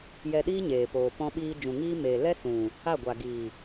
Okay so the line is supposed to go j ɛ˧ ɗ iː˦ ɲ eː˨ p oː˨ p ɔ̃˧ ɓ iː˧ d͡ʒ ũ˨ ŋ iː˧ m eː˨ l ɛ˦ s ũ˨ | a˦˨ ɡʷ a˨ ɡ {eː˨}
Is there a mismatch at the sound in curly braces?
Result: yes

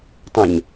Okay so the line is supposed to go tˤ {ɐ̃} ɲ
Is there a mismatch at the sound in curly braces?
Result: no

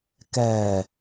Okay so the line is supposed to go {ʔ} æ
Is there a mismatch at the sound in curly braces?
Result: yes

